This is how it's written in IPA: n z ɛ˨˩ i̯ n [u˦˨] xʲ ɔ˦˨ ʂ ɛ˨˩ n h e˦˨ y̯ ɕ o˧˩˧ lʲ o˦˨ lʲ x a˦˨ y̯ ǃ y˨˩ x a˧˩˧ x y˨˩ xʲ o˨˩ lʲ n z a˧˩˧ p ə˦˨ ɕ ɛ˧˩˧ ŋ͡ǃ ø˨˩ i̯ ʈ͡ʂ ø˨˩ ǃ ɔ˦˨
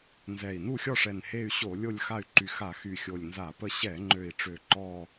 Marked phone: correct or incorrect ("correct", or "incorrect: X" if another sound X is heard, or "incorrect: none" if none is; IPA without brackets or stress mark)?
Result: correct